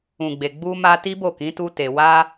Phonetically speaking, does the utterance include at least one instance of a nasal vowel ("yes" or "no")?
yes